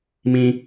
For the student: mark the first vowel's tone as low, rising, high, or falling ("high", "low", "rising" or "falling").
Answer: high